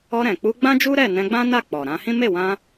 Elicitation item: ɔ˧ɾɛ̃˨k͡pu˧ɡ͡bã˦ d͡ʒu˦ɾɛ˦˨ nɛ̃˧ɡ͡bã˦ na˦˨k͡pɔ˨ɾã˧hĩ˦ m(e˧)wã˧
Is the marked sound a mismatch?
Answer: yes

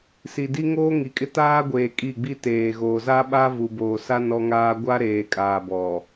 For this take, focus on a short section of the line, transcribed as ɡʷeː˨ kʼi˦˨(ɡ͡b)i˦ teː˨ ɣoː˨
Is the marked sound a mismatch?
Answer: no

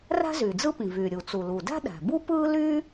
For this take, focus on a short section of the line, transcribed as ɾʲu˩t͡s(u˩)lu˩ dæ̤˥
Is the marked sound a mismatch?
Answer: no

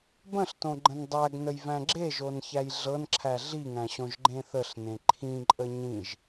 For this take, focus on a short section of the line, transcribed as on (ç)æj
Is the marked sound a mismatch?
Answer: no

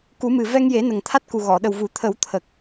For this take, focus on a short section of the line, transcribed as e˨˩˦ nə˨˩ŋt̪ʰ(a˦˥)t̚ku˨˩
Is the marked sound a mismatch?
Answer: no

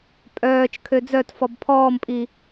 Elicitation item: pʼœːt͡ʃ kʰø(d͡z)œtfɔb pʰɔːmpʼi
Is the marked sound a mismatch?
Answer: no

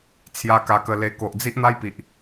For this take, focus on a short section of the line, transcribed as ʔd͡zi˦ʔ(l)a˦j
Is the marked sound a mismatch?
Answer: yes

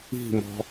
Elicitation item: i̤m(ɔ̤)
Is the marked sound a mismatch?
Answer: no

